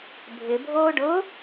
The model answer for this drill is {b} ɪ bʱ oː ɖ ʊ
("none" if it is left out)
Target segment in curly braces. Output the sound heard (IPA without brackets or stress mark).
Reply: bʱ